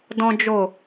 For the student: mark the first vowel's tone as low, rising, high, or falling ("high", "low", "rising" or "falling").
high